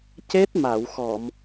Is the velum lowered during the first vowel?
no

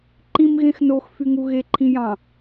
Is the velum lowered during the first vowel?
yes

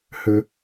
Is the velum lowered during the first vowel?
no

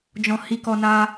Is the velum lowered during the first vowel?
yes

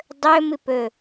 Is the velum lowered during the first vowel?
no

